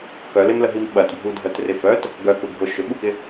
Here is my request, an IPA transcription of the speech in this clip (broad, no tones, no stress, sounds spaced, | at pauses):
k œ l ɪ m l ə ɦ i m ɓ ɐ t bʱ u dʱ œ t r ɪ f œ t | ɡ œ k u bʱ ʊ ʃ ʏ ɓ u k ɪ